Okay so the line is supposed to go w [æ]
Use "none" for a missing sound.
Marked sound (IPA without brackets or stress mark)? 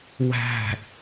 æ̤